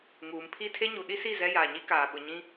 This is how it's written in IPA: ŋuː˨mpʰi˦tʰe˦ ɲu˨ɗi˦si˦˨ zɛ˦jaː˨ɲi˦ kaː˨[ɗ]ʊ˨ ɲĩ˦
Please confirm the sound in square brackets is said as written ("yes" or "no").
no